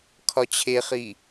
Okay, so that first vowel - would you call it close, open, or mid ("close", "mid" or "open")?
open